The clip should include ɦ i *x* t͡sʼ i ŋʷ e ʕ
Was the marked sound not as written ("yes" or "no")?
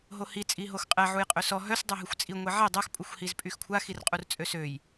yes